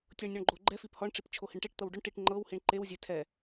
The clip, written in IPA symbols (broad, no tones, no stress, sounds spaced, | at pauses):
tʲ ɤ ɳ nʲ ɔ ɳ ɡ͡ǃ o ɡ͡ǃ ɛ f i p h ɔ ɳ ʈ͡ʂ i p t͡ʃʰ o h i ɳ ʈ e ʈ t̪ ɤ w ɖ ʊ ɳ ʈ i ʈ ŋ͡ǃ ɤ w h i ɳ ǃ e w zʲ e tʰ ɛ